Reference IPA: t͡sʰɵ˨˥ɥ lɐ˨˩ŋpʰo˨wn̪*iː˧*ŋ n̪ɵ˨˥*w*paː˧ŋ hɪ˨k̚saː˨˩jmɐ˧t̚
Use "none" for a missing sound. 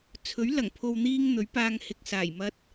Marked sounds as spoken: iː˧, ɥ

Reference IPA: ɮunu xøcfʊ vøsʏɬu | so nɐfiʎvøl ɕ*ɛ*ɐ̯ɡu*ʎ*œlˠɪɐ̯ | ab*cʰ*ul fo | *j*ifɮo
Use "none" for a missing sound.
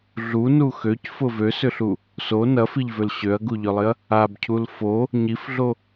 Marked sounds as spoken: ø, ʎ, cʰ, ɲ

